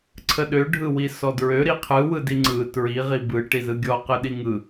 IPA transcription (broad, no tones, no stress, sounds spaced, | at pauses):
ǀʰ ə ɗ ø ɖʱ ɯ w i s ɔ d ɹ ø ɾ i qʰ ɯ w ɯ d i ŋ͡ǀ ɯ t ɹ i ʁ i b ɯ ʈ i z ɯ ɡʲ ɔ q ɯ ɗ i ŋ ɯ